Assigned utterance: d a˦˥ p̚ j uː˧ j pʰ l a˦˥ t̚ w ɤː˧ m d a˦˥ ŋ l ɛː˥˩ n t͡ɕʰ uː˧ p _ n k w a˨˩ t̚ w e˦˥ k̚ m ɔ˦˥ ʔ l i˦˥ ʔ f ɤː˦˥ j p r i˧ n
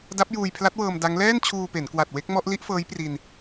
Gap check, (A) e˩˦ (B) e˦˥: A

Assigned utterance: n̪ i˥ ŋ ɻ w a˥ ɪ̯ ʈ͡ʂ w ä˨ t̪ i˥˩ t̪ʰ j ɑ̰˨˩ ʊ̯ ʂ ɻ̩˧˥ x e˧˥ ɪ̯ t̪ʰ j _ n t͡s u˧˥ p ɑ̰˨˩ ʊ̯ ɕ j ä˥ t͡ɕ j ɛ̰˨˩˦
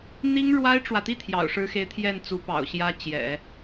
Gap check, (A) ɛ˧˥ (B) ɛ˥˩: B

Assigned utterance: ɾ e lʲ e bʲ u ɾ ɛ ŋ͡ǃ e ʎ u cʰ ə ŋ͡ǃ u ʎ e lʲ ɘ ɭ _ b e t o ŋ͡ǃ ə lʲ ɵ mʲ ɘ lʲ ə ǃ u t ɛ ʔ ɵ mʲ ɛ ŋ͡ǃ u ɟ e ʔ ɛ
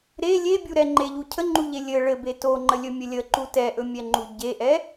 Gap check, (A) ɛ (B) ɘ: B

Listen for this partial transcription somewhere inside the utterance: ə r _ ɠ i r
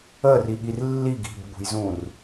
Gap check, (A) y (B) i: B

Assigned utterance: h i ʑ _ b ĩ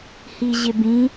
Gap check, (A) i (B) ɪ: B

